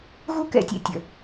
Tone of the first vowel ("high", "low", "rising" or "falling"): high